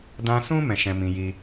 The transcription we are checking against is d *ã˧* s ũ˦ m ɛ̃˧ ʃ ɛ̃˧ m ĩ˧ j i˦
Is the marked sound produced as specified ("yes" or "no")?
yes